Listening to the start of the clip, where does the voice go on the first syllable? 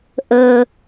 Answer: low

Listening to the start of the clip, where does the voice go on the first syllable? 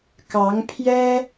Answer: rising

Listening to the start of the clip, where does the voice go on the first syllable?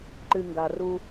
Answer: low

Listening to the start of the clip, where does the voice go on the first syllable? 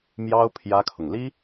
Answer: high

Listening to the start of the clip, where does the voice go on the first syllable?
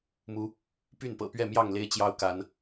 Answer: rising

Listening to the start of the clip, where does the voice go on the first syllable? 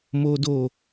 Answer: high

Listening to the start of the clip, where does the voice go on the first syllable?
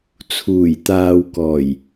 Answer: low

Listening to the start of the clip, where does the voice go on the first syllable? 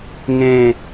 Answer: falling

